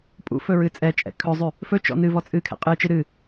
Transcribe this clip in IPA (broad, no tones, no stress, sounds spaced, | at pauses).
pʼ ṵ f ɵ ɹ ɨ t͡sʼ ɛ t͡ʃʼ ɛ̰ kʰ ɵ zˤ ʉ | f ɵ t͡ʃ ɔ̰ n ɨ v ɔ t͡sʼ ɨ kʰ ɛ̰ qʼ ɨ t͡ʃ ɨ ɾ ɨ